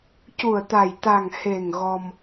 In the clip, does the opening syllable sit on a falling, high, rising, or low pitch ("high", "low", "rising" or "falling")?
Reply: low